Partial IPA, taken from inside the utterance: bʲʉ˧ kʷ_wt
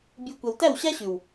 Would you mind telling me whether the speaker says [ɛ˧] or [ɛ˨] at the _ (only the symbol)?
ɛ˨